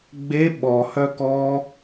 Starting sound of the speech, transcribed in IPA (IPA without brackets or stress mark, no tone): ɡ͡b